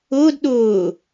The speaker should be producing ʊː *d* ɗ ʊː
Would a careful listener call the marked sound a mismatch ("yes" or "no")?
no